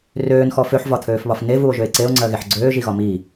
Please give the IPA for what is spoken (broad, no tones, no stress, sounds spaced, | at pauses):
r øː n x ɔ f ø ħ v ɒ t̪ʰ øː f β ɒ f n e v u o̯ ʒ ø e̯ ǀ e o̯ ŋ͡ǀ ɜ ɣ e ħ ɡ͡ǀ øː ʒ i ɣ ɒ m i